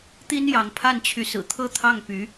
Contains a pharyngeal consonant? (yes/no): no